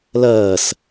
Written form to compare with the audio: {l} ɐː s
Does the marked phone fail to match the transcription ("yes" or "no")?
no